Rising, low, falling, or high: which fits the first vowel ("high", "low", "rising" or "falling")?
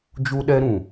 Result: high